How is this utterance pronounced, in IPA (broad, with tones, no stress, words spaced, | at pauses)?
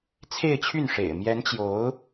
t͡sʰe˥˧ɪ̯t͡ɕʰy˥˩nʂḛ˨˩ɪ̯ mjɛ˧˥nt͡ɕjo˧˥ʊ̯